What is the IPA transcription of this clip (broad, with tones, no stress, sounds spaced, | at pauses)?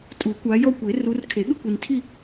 tʼ u˨˩˦ kʷ a˨˦ j ɔ˥˧ kʷ e˨˩˦ r u˨˦ r kʰ e˨˩˦ ɠ ɯ˥˧ kʷ i˨ n tʰ i˥˧